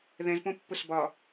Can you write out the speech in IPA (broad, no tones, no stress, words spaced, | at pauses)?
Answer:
ðɛ̃zpõpːʊs bɒ